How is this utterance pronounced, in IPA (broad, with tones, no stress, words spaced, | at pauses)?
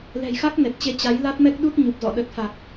lɛ̤˨˩jxa˦˥k̚ nɛ˨˩t̚t͡ɕe˧ t͡ɕa˨˦jla˦˥t̚mɛ˦˥k̚ɗu˦˥t̚ ɲu˨˩p̚zɔ̰˧˨ ɗə˨˩t̚fa˨˩k̚